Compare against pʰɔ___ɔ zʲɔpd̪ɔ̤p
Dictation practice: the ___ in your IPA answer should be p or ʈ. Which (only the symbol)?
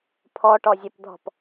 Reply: ʈ